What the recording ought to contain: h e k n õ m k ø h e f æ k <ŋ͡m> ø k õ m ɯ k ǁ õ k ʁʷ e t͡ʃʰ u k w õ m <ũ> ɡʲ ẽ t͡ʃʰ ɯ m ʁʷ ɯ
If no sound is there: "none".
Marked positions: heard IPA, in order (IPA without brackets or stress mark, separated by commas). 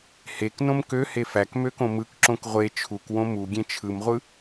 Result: m, u